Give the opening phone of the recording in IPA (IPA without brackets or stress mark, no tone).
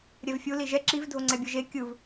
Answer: ɾʲ